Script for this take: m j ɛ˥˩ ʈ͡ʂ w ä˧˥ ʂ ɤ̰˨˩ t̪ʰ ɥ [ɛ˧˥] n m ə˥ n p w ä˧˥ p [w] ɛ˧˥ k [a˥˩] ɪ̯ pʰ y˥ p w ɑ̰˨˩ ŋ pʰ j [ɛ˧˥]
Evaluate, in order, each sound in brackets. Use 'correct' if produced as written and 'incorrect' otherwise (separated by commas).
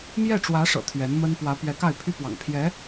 correct, incorrect, correct, correct